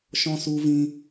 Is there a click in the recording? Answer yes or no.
no